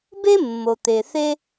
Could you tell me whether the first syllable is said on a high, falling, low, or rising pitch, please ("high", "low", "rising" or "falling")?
high